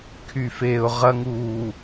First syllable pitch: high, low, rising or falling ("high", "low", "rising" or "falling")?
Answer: low